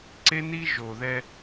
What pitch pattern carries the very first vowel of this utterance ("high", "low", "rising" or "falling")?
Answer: high